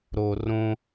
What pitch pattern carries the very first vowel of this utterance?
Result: high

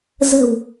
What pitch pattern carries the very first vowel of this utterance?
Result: low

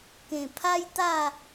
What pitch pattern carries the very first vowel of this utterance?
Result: low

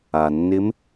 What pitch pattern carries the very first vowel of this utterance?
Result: low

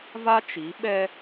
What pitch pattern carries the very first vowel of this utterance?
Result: high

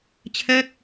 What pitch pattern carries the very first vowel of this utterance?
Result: falling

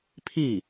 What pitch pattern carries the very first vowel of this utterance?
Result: falling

